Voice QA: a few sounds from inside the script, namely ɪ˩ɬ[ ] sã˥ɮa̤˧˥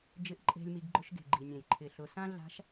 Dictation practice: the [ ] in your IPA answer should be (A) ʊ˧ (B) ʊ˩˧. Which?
B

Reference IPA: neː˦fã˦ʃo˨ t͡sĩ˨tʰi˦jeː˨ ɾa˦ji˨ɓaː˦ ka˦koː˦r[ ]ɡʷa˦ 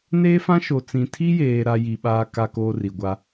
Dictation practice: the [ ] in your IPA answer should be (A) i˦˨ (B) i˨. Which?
B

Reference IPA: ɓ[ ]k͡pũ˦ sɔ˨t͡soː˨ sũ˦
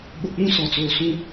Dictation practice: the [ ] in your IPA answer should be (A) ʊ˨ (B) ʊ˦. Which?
A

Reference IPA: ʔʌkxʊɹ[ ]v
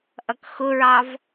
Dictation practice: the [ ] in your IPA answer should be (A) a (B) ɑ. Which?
B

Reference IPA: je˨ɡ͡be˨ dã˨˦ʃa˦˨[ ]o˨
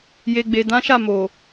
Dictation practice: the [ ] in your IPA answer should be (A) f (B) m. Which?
B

